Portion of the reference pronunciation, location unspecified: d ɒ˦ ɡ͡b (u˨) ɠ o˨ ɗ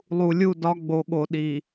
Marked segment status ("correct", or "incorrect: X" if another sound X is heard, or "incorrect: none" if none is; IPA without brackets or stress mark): incorrect: o˨